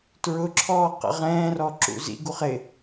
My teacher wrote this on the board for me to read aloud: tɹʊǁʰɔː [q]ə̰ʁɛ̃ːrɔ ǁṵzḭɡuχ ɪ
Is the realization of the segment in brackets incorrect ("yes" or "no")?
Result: no